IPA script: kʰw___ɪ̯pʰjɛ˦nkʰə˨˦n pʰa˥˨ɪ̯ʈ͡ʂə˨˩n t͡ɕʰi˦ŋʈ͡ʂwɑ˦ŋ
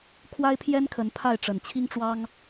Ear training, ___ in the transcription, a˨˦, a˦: a˦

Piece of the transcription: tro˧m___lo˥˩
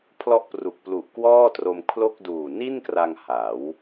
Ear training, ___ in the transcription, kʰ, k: kʰ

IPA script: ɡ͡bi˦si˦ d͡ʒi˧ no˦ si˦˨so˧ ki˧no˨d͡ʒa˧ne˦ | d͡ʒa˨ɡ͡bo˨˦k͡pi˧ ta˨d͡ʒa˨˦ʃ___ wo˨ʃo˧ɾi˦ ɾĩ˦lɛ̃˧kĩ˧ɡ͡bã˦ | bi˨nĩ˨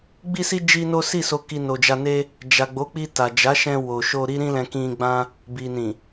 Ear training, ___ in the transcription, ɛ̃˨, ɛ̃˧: ɛ̃˧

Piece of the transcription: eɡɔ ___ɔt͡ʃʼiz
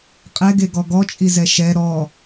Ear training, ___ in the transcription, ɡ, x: ɡ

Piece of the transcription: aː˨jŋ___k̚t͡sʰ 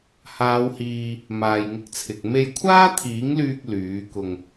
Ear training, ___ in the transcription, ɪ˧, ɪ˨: ɪ˧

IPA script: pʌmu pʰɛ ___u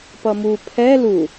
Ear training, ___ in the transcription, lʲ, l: l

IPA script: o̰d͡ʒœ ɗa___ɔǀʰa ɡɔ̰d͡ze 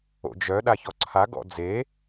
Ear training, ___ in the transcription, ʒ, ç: ç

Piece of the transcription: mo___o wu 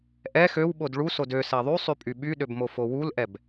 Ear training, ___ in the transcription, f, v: f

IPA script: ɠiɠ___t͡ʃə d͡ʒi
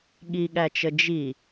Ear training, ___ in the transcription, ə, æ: æ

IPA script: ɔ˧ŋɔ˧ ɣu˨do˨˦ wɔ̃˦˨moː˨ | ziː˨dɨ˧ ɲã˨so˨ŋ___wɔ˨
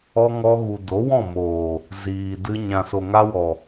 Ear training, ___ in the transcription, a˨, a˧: a˧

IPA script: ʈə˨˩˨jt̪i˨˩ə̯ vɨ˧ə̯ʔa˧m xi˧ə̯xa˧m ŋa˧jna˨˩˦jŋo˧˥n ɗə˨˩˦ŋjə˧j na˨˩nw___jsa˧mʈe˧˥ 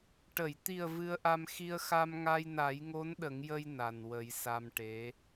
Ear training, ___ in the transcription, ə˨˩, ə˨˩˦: ə˨˩˦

